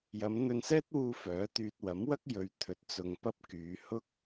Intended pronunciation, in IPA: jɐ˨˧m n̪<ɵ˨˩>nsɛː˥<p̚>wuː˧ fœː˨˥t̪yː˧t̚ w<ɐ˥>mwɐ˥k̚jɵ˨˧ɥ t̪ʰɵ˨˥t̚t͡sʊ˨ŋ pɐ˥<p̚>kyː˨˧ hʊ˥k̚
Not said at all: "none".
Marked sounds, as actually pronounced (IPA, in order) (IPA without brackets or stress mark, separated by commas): ɵ˧, t̚, ɐ˨˥, p̚